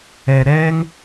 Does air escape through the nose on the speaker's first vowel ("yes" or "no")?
no